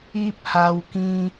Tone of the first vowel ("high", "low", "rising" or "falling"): high